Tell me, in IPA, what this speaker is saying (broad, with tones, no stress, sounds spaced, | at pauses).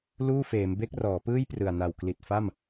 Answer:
l uː˥˩ f eː˩˦ m b e˦˥ k̚ r ɔː˩˦ p ɯː˥˩ j p r ɯ˨˩ a̯ n a˨˩ w k l i˨˩ t̚ f a˥˩ m